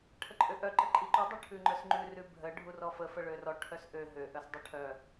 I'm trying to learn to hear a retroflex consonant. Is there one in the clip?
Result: yes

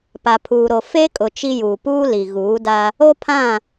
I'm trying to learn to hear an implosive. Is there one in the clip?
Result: no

